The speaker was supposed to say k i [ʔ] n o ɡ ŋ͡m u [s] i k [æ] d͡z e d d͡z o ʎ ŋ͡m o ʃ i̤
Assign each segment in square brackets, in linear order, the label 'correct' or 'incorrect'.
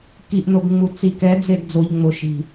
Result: correct, incorrect, incorrect

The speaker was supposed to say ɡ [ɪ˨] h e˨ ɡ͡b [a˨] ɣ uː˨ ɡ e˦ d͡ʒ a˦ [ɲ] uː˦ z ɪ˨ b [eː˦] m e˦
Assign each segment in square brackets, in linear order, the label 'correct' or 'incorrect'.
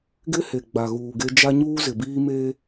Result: incorrect, correct, correct, incorrect

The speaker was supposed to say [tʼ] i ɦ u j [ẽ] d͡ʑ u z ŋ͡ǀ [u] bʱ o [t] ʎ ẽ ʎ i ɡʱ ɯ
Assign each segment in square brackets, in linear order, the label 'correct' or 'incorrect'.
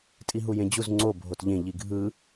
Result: correct, correct, incorrect, correct

